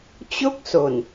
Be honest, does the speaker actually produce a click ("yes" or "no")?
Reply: no